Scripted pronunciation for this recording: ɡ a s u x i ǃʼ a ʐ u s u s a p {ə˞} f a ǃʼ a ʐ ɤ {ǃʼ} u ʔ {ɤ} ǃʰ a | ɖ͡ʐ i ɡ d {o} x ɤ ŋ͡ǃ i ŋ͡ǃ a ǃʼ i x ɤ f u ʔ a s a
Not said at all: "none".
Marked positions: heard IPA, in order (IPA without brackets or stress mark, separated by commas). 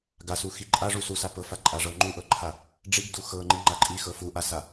ɤ, ŋ͡ǃ, ɤ, u